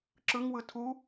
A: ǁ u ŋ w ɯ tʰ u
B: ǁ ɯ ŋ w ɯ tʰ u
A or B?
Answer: B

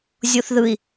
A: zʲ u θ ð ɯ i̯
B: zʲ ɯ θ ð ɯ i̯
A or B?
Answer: A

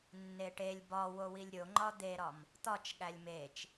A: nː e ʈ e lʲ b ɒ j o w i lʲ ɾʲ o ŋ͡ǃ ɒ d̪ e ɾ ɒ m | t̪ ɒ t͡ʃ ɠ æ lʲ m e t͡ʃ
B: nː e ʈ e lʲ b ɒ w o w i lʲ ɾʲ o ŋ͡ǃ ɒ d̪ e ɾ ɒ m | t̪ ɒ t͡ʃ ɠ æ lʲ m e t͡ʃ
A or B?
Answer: B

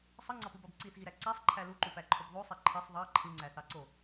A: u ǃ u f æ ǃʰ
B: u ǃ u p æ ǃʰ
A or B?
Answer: B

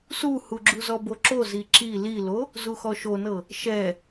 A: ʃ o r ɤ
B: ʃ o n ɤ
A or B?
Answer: B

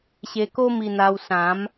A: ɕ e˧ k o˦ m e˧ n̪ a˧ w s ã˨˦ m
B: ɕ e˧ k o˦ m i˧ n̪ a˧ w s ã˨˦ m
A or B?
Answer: B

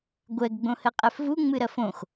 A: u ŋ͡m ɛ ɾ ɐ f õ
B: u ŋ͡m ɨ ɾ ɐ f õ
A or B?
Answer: B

